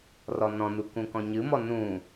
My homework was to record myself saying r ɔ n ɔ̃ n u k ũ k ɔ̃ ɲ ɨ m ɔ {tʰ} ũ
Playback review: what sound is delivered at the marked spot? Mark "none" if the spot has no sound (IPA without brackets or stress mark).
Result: n